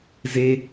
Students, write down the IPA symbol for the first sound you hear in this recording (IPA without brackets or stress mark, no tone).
z